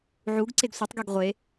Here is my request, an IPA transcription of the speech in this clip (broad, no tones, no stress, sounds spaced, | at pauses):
ʕ u ɡ ǀ e ɡ sʷ i tˤ ɡ i ɡ ʁʷ e